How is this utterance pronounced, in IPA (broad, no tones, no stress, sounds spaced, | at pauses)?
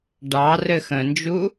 ɖ ɑ r ɘ x ə̃ n d͡ʒ u